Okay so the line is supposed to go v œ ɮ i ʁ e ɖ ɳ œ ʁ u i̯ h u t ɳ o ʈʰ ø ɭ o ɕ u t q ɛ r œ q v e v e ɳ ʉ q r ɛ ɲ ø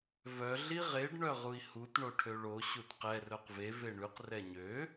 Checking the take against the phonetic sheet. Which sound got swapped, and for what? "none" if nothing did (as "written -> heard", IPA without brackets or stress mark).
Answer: none